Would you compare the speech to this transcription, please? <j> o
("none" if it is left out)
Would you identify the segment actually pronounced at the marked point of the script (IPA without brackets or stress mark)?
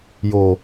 j